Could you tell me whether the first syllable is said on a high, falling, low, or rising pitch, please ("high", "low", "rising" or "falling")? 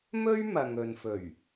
high